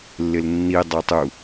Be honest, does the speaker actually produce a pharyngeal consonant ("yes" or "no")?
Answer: no